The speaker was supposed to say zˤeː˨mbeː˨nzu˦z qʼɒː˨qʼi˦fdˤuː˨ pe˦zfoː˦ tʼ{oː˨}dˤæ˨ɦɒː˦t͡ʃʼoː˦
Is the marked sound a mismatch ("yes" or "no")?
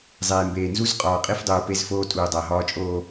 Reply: yes